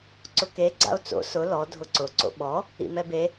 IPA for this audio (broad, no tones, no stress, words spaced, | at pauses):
ǀʊke ɡ͡ǀa̰o̯t͡so̰ sʊ lɔ dʱʊǀʊ ǀo̰ɓɔ | ḭmɛbe